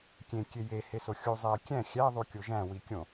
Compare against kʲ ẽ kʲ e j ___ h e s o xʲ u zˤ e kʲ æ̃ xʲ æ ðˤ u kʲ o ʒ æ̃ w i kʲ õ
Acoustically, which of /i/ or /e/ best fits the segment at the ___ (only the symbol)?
e